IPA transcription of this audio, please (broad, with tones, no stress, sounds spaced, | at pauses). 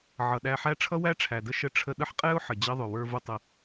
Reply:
ʕ ʌ˩ ɗ æ˧ ħ æ˥ ʈ͡ʂʰ ʌ˥ w æ˥ ʈ͡ʂʰ æ˩ d ə˥ ʃ ə˧ ʈ͡ʂʰ ə˧ ɗ ə˥ ħ qʼ ɛ˥ ʊ̯ ħ ə˩ d͡ʑ ʌ˥ ðˤ ʊ˩ w ə˞˧ v ʊ˧ tˤ ə˩